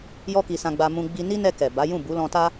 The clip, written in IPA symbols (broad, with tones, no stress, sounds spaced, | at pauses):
j ɔ˦ k i˧ s ã˧ ɡ͡b a˧ m ũ˧ ɡ͡b i˧ n i˦ n ɛ˧ k ɛ˨ b a˨˦ j ũ˦˨ b u˨˦ l ɔ̃˧ t a˦